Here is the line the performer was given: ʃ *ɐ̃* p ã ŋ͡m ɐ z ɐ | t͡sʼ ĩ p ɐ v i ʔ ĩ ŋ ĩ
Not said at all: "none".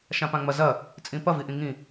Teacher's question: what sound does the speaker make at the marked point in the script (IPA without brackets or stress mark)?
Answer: ã